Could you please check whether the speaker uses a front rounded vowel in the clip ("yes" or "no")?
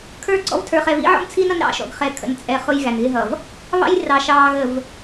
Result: no